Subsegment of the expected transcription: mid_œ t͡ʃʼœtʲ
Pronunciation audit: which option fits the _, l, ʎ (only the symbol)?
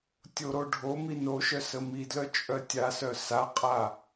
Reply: l